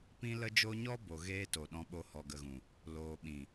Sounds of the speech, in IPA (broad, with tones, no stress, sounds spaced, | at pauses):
p ĩ˧ l ə˧ d͡ʒ o˧ ɲ ɔ˦ b o˨ ɣ eː˦ t o˨ ɗ ɔ̃˧ ɓ o˧ h ɔ˨ ɡ ə˨ ɣ ũ˨ | l oː˨ ɓ ĩ˨